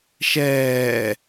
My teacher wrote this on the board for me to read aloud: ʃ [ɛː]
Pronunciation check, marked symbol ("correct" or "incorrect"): correct